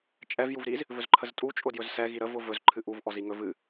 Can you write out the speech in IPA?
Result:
t͡ʃʼɛv juvɾiz | vɵzǃʰəztʼu t͡ʃʼʊdjɵzsɛ ɣiɾəv ʊvɵz ǃʰɨʔuv ʔɔziŋɵ vɨ

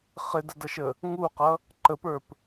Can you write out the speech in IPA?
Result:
χɪdədʌʃə | ŋuqʌ | ǃəpə˞p

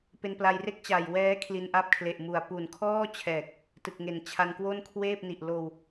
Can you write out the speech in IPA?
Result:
pe˧npla˧jre˥˩k̚t͡ɕa˨˩j wɛː˦˥ kʰli˧nʔa˦˥p̚kʰle˨˩ʔ mu˨˩a̯ pu˨˩nkʰɔː˥˩t͡ɕʰɛː˨˩k̚ | tɯ˨˩k̚ŋe˨˩n t͡ɕʰa˧nkwo˥˩nkʰweː˥˩p̚ni˨˩ʔ loː˧w

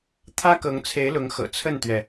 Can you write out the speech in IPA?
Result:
t̪ʰä˦kɤ˨˦ŋt͡sʰe˨˦ɪ̯lʊ˨˦ŋ xɤ̰˨˩t͡sʰə˥˨nt̪ɥɛ˩

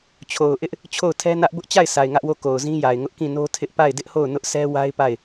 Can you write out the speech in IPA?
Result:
t͡ɕʰo˨ʊ̯ʔɪ˦ʔ | t͡ɕʰo˦˨ʊ̯tʰɛ˦nä˦ʔ bʊ˦ʔt͡ɕa˦˨ɪ̯ sʰa˨ɪ̯ŋä˦ʔwo˦˨ ko˨ʊ̯zĩ˦ja˨ɪ̯ŋʊ˦ʔ kĩ˦˨no˦ tʰɪ˦ʔpa˦˨ɪ̯ dɪ˦ʔho˦˨ʊ̯ nʊ˦ʔsɛ˦ wa˦ɪ̯pa˦˨ɪ̯

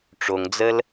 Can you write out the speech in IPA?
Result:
ʈ͡ʂoŋd͡zəl

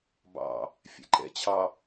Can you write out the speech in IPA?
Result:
bɑ̰ | fʲɛ̰ǃɛ̰ t͡ɕʰɑ

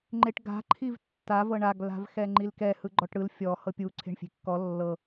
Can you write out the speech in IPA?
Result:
ŋ͡ǃeʈɡa̤ ǃʰivtːa vɤɳaɡ la̤vxɛŋ͡ǃilkɛ hɯɡ͡ǃɔʈɽɯl fʲɔ hɤpʲu ǀʰe̤ɳfʲe̤kːɔ lːɤ

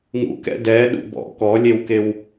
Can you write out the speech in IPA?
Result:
ŋṵkɛ̰ dɛɗṵ bɔ̰ kɔlʲewkew

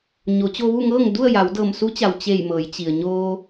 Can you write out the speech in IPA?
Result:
ɲo˩˧t͡ɕo˧ʋu˥˨ ŋɤː˥˨ŋdu˥˨ə̯ja˩˧w dɤː˧˩msu˧˥t͡ɕa˩w t͡ɕe˧˩j mɤː˩˧jt͡ɕi˩ə̯ ɲoː˧

